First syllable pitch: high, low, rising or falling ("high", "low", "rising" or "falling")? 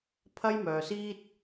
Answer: high